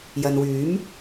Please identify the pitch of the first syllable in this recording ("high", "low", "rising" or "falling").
low